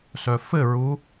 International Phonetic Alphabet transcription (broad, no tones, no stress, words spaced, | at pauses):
sœfɘɹu